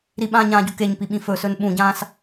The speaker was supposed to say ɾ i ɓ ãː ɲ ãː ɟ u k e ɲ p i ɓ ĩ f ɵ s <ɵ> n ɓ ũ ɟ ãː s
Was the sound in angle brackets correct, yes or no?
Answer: yes